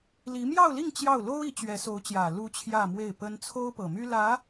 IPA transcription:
li˧˥ mjɑ˥˧ʊ̯li˥˧ŋ t͡ɕjɑ˥˩ʊ̯ lo˥ʊ̯i˧˥ t͡ɕɥɛ˧˥so˧˥ʊ̯t͡ɕjä˨˩ lu˧˥ t͡ɕʰjä˥˧mwe˥˩ɪ̯pə˥n t͡sʰo˥ʊ̯pɤ˨˩my˥ lä˧˥

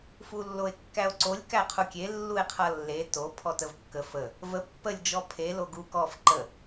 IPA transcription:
fulːoe̯kːæo̯ǀolʲ kæqʰukʲe lːue̯qʰʌlːe to pʰɔtəvkːə fə | və pːəlʲ d͡ʒɔpʰe loɡu kɔf ǃə

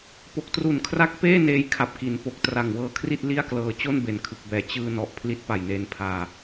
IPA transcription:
po˨˩k̚tru˨˩nkʰra˦˥k̚ peː˥˩ neː˧jkʰa˨˩p̚ki˩˦npo˨˩k̚ tra˨˩ŋwɤː˦˥kʰri˥˩t̚ li˥˩a̯klɤː˧ t͡ɕo˥˩nbe˩˦nkʰɯ˨˩k̚bɛː˨˩ t͡ɕɯː˧nɔ˨˩ʔ pʰli˦˥t̚pa˨˩jneː˧npʰaː˧

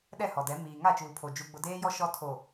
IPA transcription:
ɗɛ˦˨hɔ˨dɛ˨˦ miː˨ ŋa˦˨t͡ʃuː˨pʰo˨ d͡ʒu˦ɡ͡bʊ˦ deː˦jɔ˦ ʃɔ˦tʰo˨

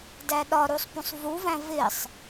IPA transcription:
dæɗɒɾusˤpũsˤ vuvæ̃ vɪsˤ

